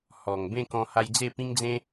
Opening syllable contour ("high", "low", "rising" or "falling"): low